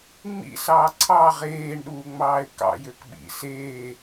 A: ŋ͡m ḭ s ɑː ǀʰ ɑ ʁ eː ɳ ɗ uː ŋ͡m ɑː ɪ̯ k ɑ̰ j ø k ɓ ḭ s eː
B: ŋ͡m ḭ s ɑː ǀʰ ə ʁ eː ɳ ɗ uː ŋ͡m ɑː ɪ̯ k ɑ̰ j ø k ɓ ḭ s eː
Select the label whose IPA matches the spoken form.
A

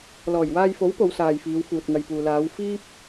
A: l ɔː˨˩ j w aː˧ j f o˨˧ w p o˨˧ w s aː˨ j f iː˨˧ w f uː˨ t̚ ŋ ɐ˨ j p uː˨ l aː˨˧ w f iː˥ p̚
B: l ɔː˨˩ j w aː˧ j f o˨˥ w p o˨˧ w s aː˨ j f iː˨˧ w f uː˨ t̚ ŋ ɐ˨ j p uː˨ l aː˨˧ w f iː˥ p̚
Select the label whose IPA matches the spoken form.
B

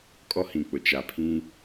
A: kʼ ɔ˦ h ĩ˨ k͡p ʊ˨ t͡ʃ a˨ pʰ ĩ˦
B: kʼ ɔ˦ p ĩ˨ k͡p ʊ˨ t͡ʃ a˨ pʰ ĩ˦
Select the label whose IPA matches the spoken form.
A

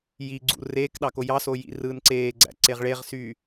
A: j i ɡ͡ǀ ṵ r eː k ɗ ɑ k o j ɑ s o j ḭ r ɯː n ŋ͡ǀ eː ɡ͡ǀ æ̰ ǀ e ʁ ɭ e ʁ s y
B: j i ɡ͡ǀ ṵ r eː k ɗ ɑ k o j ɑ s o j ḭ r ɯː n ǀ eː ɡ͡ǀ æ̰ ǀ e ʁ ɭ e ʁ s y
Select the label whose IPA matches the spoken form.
B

